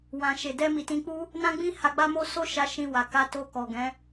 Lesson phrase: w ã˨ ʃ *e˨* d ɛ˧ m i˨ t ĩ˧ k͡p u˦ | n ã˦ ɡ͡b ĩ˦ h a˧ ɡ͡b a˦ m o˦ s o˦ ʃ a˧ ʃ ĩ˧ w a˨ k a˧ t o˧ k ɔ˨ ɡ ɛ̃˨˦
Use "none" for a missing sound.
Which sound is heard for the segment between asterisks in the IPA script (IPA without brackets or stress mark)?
e˨